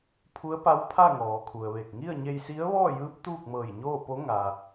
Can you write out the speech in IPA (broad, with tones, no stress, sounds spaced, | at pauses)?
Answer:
pʰ u˧˥ ə̯ p a˧˥ w pʰ a˥˨ ŋ ɔː˩˧ kʰ u˩ ə̯ ʋ e˧˩ k̚ ŋ i˥˨ ə̯ ɲ e˧ j s i˧˥ ə̯ ʋ ɔː˥˨ j ɯː˧˥ p̚ t̪ uː˥˨ k̚ m ɤː˧˩ j ɲ oː˥˨ p o˧˥ ŋ a˩